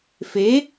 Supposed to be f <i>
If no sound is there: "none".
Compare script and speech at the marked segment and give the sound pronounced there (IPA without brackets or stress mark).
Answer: e